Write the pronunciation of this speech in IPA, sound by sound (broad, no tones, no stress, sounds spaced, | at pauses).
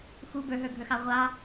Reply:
x u b ə˞ ɦ ə˞ ɡʱ ə˞ x ɑ ʁʷ ɑ